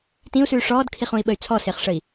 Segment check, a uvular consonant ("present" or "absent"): present